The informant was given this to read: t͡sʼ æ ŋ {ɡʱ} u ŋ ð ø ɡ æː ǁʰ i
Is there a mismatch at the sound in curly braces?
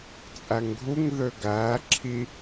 no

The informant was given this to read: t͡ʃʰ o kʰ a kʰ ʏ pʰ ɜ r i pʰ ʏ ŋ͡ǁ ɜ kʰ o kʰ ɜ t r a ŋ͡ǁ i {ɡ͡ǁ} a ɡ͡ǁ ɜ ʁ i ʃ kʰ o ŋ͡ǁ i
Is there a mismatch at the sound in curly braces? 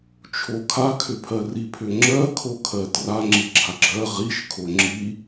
no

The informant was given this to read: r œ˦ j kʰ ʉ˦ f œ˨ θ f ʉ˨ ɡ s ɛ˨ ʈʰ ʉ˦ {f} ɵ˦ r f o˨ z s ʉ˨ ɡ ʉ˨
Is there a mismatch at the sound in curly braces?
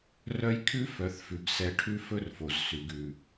no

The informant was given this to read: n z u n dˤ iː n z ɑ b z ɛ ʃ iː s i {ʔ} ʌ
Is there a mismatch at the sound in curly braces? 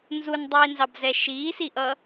no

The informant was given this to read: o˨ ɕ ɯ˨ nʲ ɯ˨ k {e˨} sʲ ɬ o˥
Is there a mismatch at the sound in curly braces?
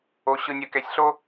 yes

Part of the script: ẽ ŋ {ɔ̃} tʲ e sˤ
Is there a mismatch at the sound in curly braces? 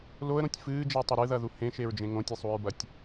yes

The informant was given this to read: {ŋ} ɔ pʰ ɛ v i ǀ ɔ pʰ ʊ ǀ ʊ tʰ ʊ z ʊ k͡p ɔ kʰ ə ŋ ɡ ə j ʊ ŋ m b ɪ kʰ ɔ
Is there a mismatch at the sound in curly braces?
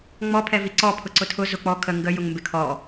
yes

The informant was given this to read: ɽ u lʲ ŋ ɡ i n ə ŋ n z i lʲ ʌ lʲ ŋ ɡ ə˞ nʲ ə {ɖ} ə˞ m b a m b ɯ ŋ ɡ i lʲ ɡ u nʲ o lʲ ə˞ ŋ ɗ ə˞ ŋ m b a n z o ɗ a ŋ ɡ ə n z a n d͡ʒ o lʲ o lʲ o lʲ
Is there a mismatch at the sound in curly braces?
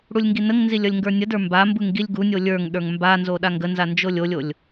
yes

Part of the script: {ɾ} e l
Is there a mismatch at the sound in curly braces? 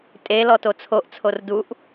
yes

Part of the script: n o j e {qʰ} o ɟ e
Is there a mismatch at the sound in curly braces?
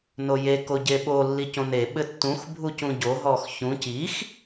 yes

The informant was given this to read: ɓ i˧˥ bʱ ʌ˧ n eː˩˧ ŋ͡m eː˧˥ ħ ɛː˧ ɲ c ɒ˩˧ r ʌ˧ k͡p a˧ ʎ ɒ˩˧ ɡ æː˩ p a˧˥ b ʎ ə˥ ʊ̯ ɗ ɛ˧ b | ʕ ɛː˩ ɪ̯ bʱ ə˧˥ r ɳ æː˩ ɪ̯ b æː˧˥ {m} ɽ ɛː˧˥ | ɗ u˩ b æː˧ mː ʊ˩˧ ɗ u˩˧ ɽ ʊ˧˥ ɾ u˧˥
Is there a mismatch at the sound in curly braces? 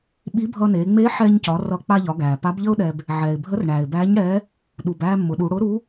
yes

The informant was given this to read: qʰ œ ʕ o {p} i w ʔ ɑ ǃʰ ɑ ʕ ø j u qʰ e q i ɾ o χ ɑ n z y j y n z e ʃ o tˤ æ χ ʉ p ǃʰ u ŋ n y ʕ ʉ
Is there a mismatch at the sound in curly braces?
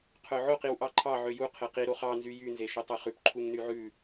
yes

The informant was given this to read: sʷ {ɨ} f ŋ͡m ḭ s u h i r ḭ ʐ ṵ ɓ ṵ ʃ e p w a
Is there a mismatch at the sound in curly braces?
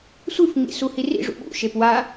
no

